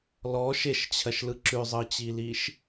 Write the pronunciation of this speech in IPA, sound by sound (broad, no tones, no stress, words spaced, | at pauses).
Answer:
lɔ ʃeʃt͡ɕʰɜʃlɯ ǁʉzˤɯt͡ɕiliʃ